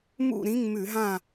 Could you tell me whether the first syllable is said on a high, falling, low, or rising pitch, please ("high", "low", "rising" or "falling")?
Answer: falling